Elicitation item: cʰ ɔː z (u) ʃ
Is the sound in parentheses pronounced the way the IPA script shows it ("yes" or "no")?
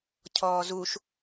yes